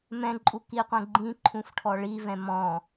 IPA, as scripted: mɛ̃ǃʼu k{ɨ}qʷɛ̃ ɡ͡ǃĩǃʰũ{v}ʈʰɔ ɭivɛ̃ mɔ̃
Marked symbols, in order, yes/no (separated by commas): no, no